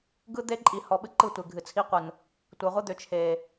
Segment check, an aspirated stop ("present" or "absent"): present